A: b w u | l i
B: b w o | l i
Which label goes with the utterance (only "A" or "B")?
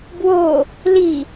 B